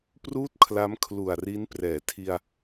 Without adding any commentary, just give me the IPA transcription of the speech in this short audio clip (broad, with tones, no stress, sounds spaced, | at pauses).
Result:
p r uː˥˩ t̚ kʰ l a˦˥ m kʰ l u˨˩ a̯ r i˦˥ n p r ɛː˩˦ tʰ i˧ a̯